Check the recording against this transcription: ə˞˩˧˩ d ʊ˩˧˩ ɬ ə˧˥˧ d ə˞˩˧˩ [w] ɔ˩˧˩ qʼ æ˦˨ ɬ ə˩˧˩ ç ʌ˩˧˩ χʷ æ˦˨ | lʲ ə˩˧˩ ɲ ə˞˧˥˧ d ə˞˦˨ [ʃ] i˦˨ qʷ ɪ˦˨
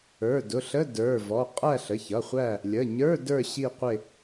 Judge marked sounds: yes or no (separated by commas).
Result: no, no